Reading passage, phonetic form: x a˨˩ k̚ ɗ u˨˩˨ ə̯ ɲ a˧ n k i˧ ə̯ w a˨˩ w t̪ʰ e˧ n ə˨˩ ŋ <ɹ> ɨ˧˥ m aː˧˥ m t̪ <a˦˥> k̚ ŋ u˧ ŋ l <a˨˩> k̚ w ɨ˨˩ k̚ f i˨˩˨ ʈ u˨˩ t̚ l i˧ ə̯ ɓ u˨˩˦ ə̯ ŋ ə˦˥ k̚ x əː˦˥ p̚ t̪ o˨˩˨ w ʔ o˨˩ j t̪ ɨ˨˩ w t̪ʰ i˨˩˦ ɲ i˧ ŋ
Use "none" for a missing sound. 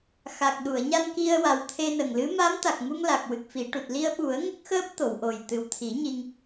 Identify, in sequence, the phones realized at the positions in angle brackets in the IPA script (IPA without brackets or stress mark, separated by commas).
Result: l, a˨˩, a˨˩